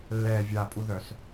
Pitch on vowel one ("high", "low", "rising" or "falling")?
low